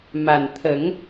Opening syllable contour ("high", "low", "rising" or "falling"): low